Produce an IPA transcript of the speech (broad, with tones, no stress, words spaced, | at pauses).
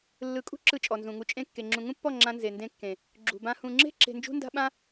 lːɯ˨˦kʼṳ˦ǁɯ˧ t͡ʃʼɔ˨nzũ˨ŋu˧t͡ʃʼẽ˦˨ kːe˨ŋ͡ǁũ˨ŋũ˦pːɔ˦˨ ŋ͡ǁã˦ nze˨ndẽ˧kːẽ˨ | ɡ͡ǁṳ˨ bã˧ hũ˨ŋ͡ǁe̤˦ ǁe̤˧nd͡ʒṳ˦nda̤˦ ɓã˦